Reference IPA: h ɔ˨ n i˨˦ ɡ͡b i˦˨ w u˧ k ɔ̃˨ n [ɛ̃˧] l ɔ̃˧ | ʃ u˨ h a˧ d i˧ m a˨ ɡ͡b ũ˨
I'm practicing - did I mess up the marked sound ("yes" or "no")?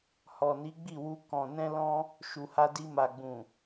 no